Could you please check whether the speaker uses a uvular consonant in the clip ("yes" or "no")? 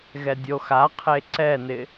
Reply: yes